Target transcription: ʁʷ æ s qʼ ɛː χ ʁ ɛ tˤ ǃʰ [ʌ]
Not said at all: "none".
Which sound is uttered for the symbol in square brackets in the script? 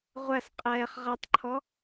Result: ɔ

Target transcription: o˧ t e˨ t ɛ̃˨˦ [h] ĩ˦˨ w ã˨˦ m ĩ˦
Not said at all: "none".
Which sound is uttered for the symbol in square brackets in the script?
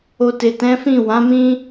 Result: f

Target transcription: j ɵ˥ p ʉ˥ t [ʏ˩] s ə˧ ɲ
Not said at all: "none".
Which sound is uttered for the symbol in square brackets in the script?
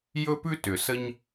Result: ʏ˩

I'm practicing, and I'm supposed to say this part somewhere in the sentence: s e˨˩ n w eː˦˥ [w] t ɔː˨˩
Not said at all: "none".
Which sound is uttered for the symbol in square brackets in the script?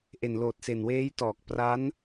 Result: j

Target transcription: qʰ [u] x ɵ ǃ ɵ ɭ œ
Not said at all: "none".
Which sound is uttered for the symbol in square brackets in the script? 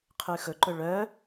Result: ʉ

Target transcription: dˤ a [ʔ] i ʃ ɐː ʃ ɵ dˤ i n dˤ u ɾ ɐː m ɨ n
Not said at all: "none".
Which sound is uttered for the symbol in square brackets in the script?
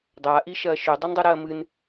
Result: ʔ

